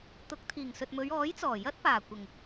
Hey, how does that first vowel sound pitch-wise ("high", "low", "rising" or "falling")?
rising